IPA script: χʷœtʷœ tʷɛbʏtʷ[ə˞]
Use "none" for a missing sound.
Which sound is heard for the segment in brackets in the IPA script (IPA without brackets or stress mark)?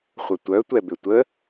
ə